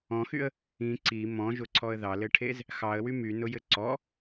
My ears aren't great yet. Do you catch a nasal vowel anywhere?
yes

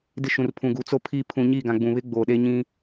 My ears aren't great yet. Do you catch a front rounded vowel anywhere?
no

